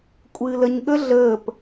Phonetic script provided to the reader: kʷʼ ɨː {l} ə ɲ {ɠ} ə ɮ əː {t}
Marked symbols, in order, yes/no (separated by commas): yes, yes, no